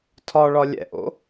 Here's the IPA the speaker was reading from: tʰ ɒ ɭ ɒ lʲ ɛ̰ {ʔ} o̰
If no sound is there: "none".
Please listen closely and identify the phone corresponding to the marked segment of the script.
ʔ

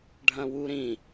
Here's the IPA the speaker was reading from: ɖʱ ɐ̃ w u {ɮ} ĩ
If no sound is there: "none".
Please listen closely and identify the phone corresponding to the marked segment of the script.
ɾ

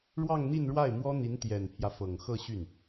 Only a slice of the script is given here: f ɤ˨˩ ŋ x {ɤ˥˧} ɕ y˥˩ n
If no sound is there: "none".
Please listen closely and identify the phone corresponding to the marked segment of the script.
ɤ˥˧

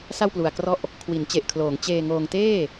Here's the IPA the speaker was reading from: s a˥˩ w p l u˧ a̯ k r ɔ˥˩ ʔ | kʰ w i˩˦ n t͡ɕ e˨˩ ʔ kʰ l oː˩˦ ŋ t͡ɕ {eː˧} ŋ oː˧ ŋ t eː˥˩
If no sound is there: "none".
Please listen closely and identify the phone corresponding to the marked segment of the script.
eː˧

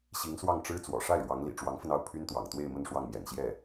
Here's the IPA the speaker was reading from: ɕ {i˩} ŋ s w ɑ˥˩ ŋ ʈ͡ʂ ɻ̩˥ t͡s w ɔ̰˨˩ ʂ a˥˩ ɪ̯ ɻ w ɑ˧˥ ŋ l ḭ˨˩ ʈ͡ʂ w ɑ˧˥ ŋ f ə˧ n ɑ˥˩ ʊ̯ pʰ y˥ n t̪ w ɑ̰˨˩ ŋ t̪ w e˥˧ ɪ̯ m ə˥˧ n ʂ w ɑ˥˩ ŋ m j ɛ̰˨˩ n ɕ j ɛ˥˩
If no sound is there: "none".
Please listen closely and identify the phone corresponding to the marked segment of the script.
i˧˥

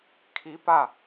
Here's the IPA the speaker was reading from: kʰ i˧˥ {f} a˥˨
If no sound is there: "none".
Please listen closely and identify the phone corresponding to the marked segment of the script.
p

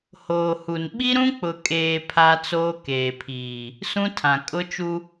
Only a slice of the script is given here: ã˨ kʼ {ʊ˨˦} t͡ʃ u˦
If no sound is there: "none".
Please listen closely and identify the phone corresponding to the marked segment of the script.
ʊ˦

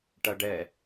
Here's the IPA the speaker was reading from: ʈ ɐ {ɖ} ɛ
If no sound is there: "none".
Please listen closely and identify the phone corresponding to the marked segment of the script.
ɖ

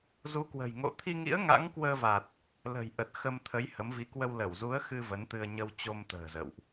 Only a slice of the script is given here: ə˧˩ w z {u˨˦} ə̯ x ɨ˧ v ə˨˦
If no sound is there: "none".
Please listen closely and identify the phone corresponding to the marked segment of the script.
u˨˦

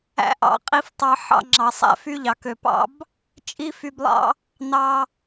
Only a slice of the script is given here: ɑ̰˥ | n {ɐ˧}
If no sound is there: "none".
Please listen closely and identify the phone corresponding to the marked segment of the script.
ɑ˧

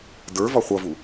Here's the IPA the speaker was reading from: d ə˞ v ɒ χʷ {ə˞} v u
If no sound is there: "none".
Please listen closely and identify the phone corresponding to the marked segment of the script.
ʌ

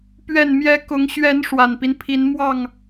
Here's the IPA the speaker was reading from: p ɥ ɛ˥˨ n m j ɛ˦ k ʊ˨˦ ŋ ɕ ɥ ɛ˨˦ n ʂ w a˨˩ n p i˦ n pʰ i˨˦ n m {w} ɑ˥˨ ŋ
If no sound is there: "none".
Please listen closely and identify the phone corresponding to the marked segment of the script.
w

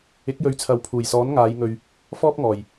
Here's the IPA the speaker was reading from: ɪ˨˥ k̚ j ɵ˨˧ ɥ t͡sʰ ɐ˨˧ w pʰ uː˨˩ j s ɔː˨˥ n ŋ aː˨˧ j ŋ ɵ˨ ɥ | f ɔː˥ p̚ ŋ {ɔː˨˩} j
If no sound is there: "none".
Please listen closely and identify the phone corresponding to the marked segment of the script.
ɔː˨˩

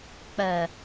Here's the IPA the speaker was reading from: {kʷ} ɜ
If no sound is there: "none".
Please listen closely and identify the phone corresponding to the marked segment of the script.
k͡p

